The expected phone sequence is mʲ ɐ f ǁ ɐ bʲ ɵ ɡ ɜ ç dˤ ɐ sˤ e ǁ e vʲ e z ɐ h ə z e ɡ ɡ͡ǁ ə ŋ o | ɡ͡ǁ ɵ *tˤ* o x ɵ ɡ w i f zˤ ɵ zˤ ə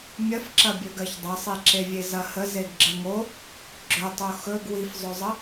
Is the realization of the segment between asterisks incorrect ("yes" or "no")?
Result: no